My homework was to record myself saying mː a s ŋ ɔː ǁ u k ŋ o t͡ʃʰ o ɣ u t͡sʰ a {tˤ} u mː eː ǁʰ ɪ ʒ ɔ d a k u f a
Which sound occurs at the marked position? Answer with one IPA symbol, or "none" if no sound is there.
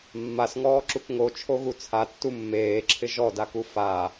tː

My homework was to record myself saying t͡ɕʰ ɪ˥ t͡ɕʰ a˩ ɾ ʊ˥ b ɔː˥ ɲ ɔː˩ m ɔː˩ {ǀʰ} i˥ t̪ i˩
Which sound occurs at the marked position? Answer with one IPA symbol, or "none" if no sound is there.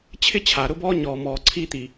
ǀʰ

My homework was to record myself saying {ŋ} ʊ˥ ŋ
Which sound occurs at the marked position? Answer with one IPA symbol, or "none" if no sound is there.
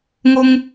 ŋ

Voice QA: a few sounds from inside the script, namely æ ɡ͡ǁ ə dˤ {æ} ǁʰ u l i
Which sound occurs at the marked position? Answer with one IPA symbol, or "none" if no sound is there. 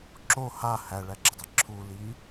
ɛ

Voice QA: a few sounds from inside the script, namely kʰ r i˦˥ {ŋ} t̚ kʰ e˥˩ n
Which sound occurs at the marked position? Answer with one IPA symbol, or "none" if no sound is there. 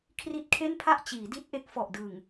none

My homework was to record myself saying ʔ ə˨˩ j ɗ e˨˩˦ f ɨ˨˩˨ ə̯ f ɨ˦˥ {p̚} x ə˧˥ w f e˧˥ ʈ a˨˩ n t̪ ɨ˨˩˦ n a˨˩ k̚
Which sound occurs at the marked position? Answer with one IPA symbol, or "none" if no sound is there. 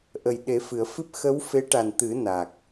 p̚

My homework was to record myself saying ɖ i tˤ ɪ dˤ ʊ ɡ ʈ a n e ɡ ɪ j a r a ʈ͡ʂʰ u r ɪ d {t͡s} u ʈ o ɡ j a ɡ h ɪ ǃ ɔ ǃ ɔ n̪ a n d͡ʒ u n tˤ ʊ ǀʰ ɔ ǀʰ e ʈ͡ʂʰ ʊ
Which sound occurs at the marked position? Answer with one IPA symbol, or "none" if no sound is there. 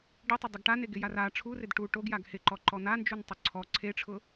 ʈ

